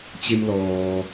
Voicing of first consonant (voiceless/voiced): voiceless